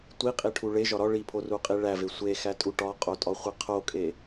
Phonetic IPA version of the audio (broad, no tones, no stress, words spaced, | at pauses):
tʷiqʼiʈʰu ɭeʒɒ ɾɒ ɭipʰoruqʼi ɭæve sʷexætʼu ʈɒqʼotʼɒχʷe qʰokʼe